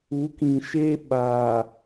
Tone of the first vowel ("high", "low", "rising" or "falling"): rising